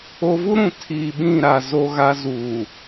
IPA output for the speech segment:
o˦ v u˦ ɾ ũ˨ tʰ iː˨ ɓ ĩ˦˨ ɾ a˨ z o˦ ɣ a˦ z uː˨

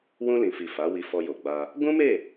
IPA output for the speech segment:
w ũ˧ l ĩ˨ f i˨ f a˨˦ w i˧ f ɔ˧ j o˨ ɡ͡b a˧ | ɡ ũ˦ m e˦˨

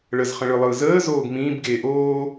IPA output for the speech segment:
ɭ ə z χ ə̃ ɭ ɯ lˠ ɯː z əː z oː ɡ m ĩː b ɡ eː ʔ oː

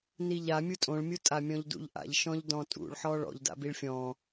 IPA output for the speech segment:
n i ʎ a mʲ u tʼ õ ɭ mʲ u tʼ a mʲ ɔ̃ ʎ d ṵ ʎ ʔ a̰ ʎ ʃ ɔ̃ ʎ d ɔ̃ tʼ ṵ ɭ ħ ɔ ɭ ɔ̰ ʎ d a̰ b i ɭ fʲ ɔ̃

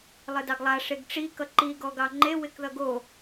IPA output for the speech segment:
lˠ ɪ d ɑ ɡ lˠ a ʂ e ɡ ʈ͡ʂ i k ʌ ǃ i ɡ ɔ ɡ ɑ ŋ͡ǃ e w ɪ k ð ʌ ɡ o

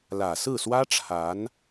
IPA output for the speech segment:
l ä˨˩ s ɹ̩˥˩ s w ä˥ ʈ͡ʂʰ a˧˥ n

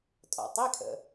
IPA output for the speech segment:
tʼ ɔ̰˩ tˤ i˧˥˧ kʰ ə̰˩

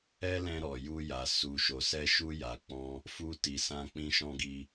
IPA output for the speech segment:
ɛ˦ l ɛ̃˧ ɾ ɔ˨ j u˧ j a˨ s u˨ ʃ o˨ s ɛ˧ ʃ u˧ j a˨ k͡p ɔ̃˧ | f u˧ t i˨ s ã˧ k͡p ĩ˧ ʃ ɔ̃˧ ɡ i˧

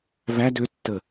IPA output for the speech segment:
v æ d ø tː ə

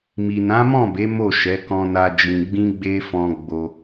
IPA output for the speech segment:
m i˨ n ã˨˦ m ɔ̃˦˨ b e˨˦ m o˦˨ ʃ ɛ˨˦ k ɔ̃˧ n a˧ d͡ʒ ĩ˧ ɡ͡b ĩ˦ ɡ͡b e˦ f ɔ̃˧ ɡ͡b o˧

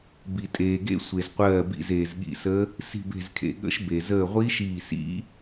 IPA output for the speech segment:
b i˩ tʼ eː˩ ɡ ḛ˧˥ sʷ e˩ z qʷ ɜː˧˩ b ḭ˧˩ z eː˩ z ɠ ḭ˧˩ s ə˧˥ | s i̤˧˩ b e̤˧˩ z kʰ ḛ˩ ɠ ə̰˧˥ ʃ b e˩ z əː˧˩ ʁʷ i˧˥ ʃ iː˧˩ s ḭ˧˥

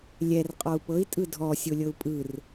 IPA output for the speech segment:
lʲ ɛ r qʼ ɔ u̯ p ɤ i̯ tʼ ɯ dʱ ɔ sʲ o lʲ ɤ u̯ pʼ ɯ r

